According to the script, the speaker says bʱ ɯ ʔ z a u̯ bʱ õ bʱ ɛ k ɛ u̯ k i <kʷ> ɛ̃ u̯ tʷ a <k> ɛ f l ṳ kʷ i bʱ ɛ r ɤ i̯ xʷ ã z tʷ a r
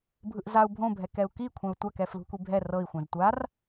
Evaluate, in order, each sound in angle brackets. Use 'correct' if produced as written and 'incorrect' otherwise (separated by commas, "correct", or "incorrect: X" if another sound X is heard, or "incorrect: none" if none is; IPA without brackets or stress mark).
incorrect: kʷʰ, correct